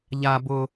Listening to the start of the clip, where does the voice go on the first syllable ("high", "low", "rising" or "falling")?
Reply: high